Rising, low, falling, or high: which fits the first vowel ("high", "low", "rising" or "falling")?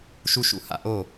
high